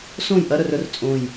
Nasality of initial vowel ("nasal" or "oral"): nasal